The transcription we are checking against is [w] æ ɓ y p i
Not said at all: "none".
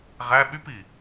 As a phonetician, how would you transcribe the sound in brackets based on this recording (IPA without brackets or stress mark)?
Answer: ʁ